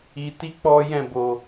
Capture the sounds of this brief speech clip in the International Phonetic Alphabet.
i˧ t i˦ k͡p ɔ˦ j ɛ̃˦˨ b o˨

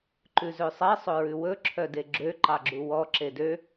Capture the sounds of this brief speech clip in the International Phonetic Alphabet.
ǃ ʉ z ø sˤ ɛ sˤ ɵ ɹ ʉ w ɵ ǁʰ œ d e ɡ͡ǁ ø ǃ ɑ ɡ͡ǁ u w ɔ ǁ e d ø

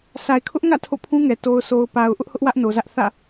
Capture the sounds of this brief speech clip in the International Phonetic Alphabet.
s a˨ ɪ̯ kʰ ʊ˦ ʔ ŋ ä̰˦˨ tʰ o̰˦˨ pʰ ũ˦ ŋ ɛ˨ t o˨ ʊ̯ sʰ o˨ ʊ̯ p a˨ ʊ̯ ʔ ʊ˦ ʔ h ʊ˦ ʔ w ä˦ ʔ n o˨ z ä˦ ʔ θ ä̰˦˨

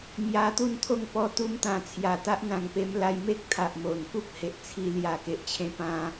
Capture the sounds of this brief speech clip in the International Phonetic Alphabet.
m j a˧ t̪ u˥˧ n t̪ʰ o˥˧ ŋ p ɔ˧ t̪ u˧ m t̪ ã˨˩ t͡sʰ j a˨˩ t̪ a˦ ʔ n̪ ã˨˩ ŋ p e˧ m l a˧ j m e˦ k̚ t̪ʰ a˨ ʔ m o˨˩ n k u˦ p̚ h e˨ ʔ t͡sʰ i˧ l j a˨˩ k e˨ ʔ t͡ɕʰ ẽ˧ p ã˧

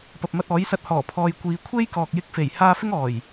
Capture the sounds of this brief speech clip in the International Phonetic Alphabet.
p ɐ˨ p̚ m ɐ˧ t̚ ɔː˨˥ j s ɐ˧ t̚ h ɔː˨˩ pʰ ɔː˨ j kʷ iː˨ kʷʰ e˥ j k ɔː˨ k̚ j ɪ˧ k̚ f e˨˩ j h aː˧ f ɪ˥ ŋ ɔː˨˩ j

